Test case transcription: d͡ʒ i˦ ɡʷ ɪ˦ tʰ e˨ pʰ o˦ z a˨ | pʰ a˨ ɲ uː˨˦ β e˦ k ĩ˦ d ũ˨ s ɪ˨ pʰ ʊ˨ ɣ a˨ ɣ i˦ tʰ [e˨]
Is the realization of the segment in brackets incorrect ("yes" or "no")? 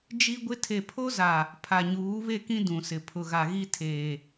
yes